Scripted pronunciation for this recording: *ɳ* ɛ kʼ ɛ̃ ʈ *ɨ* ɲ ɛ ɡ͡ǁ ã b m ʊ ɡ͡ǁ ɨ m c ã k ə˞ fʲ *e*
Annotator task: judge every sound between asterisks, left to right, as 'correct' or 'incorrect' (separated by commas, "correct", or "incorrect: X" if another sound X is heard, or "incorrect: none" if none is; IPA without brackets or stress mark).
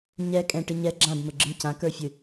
incorrect: ɲ, correct, incorrect: ɨ